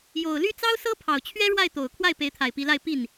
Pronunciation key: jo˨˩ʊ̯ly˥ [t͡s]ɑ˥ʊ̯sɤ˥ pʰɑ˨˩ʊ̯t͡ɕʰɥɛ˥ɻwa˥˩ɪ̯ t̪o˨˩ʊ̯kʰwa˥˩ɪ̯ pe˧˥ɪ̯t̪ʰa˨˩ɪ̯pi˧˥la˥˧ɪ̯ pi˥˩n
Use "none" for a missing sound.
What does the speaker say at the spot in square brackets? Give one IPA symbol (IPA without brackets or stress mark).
t͡s